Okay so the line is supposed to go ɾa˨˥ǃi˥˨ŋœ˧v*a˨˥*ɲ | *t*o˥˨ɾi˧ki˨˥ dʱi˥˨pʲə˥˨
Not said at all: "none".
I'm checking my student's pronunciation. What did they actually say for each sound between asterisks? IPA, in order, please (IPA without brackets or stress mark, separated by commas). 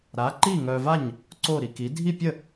a˥˨, ǀ